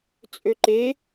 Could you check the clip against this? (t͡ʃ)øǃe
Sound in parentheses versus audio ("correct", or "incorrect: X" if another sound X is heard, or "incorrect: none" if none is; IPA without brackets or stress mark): incorrect: t͡sʼ